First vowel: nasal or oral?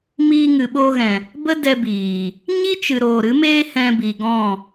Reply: oral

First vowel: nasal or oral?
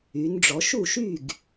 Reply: oral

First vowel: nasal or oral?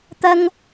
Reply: oral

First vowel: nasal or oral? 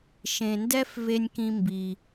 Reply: nasal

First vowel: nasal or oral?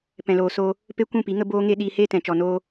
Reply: nasal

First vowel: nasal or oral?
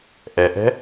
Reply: oral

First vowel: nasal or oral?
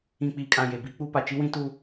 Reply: nasal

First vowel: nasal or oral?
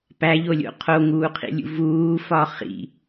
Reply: oral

